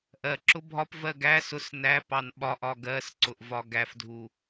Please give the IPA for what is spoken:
ʔɜǁʊ bʱɒpvɜ ɡæ sʊs næpɑn ɓɒʔɒ ɡɜsǀʊʔ vɒɡæfdʱu

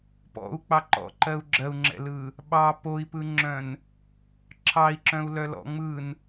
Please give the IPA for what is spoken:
pɔ̰u̯k͡pɑǃɔ̰ǃɜu̯ ɡ͡ǁɜu̯ŋ͡ǁɛ̰lɯ | ɓɑ poi̯pɯŋ͡ǁœ̃n | ǁʰɑi̯ǁœ̃u̯lœlɔ̰ ŋ͡mɯn

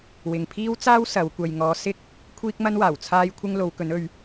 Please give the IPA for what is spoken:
wɪ˨ŋpʰiː˥wt͡saː˥w sɐ˨˧w kʷɐ˨jŋɔː˨˧ sɪ˥k̚ | kʷʰiː˥k̚mɐ˥nwaː˨˩w t͡sʰaː˧jkʷʰɪ˧ŋ lo˨˧wkɵ˨˥nɵ˨˧ɥ

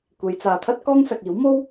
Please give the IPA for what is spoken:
kʷe˨˧jt͡saː˨t̪ʰɐ˥t̚ kɔː˥ŋsɐ˨k̚iː˨˥w mo˥w

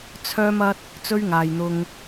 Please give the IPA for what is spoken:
t͡sʰœː˥mɐ˥t̚ | t͡sɵ˥ɥŋaː˨jn̪ʊ˧ŋ

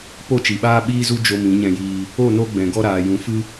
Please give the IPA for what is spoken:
po˦˨t͡ʃi˨ɓaː˦ ɓiː˦zu˦ d͡ʒo˧mĩ˨˦ɲɛ̃˧jiː˧ | o˦˨no˧ɡ͡bɛ̃˨ ɡɔ˧ɾaː˨ jũ˨˦fɨ˦

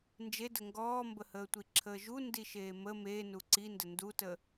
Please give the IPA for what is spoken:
nd͡ʒedə ŋɡɔːmbəhəːtʷi ǁʰəːʒu ndiʃeːmə me nuǀində ndutə

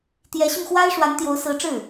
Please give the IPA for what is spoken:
t̪jɛ˧˥ɕy˧nxwa˥ɪ̯ ʂwa˧˥nt̪jo˧˥ʊ̯sɹ̩˧˥ʈ͡ʂɻ̩˥˩

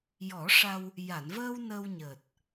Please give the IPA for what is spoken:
jɔ˨˩˦ʂa˧w | ja˨˩˨n vəː˧w nə˧wɲəː˨˩t̚

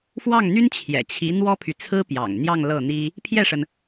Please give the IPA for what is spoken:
fwɑ˥˩ŋn̪y˥n t͡ɕʰjɛ̰˨˩t͡ɕʰi˧˥ n̪wɔ˥pʰy˨t͡sʰɹ̩˥ pjɑ̰˨˩ŋn̪jɑ˥˧ŋ lɤ˥˩n̪i˥ | pʰjɛ˥˩ʂə˩n

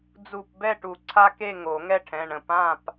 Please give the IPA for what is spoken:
d͡zu˧˩p bɛ˥˨ʈu˨˩˦ǀʰa˦ ke˥˨ŋo˨˩˦ ŋɛ˥˨ʈʰɛ̃˩˧˩ɳə̃˧˩ pã˥˨p

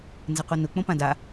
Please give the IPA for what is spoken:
nzɘqʷɘnʊ k͡põpãda

